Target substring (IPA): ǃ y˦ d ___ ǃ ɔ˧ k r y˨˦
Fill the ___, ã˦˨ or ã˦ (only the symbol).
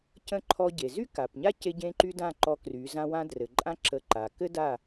ã˦˨